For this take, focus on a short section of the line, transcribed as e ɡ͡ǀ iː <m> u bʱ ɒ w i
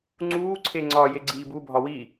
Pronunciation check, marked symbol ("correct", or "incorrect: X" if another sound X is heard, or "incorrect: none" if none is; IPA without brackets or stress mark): incorrect: b